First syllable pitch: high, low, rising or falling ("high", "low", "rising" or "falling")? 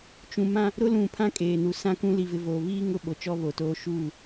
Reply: low